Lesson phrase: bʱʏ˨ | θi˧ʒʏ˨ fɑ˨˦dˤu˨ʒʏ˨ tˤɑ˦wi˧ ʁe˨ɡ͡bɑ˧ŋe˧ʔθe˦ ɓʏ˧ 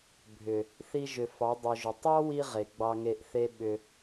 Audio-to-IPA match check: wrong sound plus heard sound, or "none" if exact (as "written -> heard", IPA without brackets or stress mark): none